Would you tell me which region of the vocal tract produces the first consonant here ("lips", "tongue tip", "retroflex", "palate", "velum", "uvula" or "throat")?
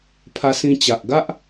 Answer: lips